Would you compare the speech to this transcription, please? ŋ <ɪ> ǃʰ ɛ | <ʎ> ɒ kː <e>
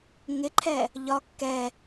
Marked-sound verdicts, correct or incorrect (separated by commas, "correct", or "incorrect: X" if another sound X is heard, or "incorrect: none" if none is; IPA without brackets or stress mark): correct, correct, incorrect: ɛ